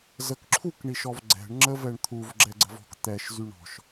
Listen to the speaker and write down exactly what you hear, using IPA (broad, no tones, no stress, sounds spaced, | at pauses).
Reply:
z ə k ǁʰ u k ɳ i ʃ ɔ v ɡ͡ǀ ɛ̤ ɳ ŋ͡ǁ ə v ɛ ɳ t̪ʰ u v ɡ͡ǁ ɛ ɡ͡ǀ ə̤ v ɔ̤ k t̪ ɛ ʃ z y ɳ ɔ̤ ʃ